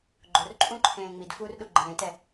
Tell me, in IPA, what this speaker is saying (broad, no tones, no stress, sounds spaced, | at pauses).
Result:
ɡ͡ǃ ʊ r ǃʼ ũ ǃʰ ẽː ŋ͡m i d f uː r ɗ u ɡ͡ǃ ẽː t ɛ